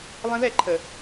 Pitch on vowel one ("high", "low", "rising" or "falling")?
high